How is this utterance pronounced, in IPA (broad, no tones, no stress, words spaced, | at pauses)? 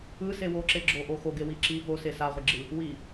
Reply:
ɯse woǁeɡ͡ǁoʔo xoɡewi ǁi vose saʁʷiɡ͡ǁɯ | wi